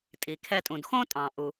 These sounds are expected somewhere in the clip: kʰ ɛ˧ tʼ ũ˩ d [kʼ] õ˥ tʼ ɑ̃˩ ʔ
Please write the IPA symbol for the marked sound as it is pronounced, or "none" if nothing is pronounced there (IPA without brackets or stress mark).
x